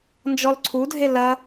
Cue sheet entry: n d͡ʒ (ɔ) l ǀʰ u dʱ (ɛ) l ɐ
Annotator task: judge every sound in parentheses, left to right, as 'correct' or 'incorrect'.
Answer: correct, incorrect: e

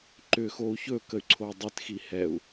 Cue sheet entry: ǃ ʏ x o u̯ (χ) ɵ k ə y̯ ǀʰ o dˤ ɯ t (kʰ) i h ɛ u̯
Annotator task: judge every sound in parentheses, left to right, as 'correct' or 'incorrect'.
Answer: incorrect: ç, incorrect: x

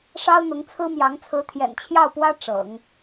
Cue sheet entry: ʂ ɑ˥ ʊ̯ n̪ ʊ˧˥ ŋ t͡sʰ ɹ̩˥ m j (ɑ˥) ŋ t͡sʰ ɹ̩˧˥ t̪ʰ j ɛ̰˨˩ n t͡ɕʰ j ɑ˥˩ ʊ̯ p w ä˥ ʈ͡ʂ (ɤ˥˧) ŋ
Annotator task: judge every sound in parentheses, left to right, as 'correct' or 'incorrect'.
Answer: incorrect: ɑ˧˥, incorrect: ɤ̰˨˩˦

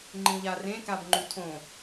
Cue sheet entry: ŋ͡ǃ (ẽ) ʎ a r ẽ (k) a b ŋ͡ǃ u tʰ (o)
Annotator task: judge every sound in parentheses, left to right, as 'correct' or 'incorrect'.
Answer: incorrect: ĩ, correct, incorrect: õ

